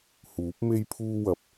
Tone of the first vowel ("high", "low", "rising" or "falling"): rising